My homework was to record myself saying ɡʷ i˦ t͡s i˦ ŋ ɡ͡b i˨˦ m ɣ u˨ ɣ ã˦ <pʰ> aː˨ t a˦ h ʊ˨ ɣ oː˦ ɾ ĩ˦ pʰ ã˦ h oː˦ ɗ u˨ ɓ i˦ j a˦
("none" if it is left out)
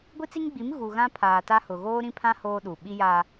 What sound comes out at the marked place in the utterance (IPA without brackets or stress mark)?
pʰ